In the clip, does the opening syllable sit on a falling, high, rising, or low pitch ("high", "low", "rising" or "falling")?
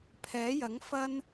rising